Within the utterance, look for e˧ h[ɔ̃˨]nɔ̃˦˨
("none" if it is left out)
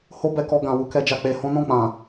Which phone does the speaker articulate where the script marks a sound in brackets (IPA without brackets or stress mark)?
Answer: ɔ̃˦